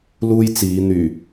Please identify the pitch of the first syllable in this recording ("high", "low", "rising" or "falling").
high